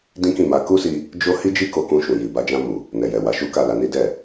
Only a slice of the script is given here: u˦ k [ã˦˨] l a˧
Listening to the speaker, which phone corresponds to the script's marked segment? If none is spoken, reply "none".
a˦˨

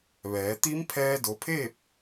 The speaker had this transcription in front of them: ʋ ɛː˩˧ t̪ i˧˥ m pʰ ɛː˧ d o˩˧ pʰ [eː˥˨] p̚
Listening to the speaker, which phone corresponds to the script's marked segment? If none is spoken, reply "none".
eː˥˨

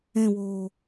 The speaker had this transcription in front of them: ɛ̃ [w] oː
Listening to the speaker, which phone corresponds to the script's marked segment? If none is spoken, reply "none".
w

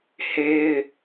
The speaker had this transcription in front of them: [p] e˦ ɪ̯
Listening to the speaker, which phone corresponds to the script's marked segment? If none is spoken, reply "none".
h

